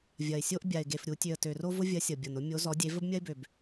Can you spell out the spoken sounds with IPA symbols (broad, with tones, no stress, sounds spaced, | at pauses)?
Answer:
vʲ ɐ˨˩ ɪ̯ sʲ o˦ ʔ bʲ a˨˩ ɪ̯ ɡ e˨˩ f ɾʲ u˧˩˧ tʲ ø˨˩ ə̯ t ø˨˩ r o˦ v ʊ˦ vʲ ɐ˨˥ sʲ ʌ˨˩ bʲ ʌ˨˩ n ʊ˦ mʲ o˨˥ z ɔ˨˥ dʲ e˨˥ v ə˦ b mʲ ɐ˦ ɪ̯ b ø˨˩ b